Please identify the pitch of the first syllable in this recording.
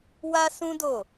high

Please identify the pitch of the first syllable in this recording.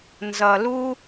low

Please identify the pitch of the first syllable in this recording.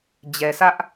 low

